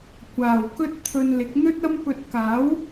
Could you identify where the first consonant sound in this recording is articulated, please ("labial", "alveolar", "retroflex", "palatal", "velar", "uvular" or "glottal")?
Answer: velar